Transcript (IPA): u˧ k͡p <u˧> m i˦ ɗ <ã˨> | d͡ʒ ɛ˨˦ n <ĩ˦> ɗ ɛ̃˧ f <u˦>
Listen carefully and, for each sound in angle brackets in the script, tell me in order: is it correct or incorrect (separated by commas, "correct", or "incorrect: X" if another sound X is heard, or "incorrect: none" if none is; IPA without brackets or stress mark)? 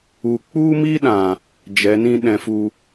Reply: incorrect: u˦, correct, correct, correct